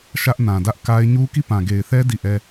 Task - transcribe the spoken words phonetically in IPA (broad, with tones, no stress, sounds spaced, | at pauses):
ʃ ä˦ ʔ n ã˨ d ä˦ ʔ k a˦ ɪ̯ ɲ u˦ k i˦˨ p ã˨ ɡ e˨ ɪ̯ θ ɛ˦ d i˦˨ ʔ ɛ˦